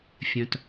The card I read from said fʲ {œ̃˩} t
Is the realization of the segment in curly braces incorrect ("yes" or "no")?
no